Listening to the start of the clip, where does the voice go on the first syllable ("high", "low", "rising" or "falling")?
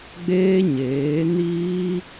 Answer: high